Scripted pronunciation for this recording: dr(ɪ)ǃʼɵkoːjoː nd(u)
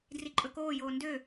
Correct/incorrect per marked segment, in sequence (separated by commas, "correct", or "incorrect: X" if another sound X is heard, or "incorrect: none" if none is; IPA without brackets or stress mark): incorrect: i, incorrect: ø